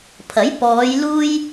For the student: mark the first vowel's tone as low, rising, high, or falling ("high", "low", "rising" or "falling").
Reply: rising